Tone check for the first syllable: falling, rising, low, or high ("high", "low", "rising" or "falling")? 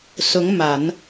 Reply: rising